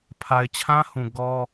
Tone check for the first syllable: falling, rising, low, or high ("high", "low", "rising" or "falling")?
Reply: low